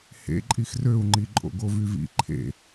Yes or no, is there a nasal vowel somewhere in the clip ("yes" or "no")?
no